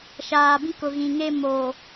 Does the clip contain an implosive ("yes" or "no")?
no